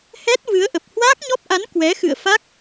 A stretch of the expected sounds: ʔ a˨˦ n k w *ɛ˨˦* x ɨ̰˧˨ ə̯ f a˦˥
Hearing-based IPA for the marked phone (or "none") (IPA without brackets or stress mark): ɛ˨˦